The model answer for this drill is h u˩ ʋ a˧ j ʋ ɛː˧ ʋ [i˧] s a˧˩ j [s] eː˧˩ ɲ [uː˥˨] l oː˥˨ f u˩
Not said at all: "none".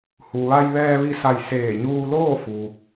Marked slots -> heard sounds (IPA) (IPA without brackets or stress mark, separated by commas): i˧, s, uː˧